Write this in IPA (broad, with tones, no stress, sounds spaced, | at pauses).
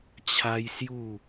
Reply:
t͡ɕʰ a˦ j s j u˥˧